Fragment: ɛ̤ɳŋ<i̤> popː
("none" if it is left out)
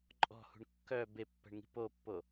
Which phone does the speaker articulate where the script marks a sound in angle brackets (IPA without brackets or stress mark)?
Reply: i̤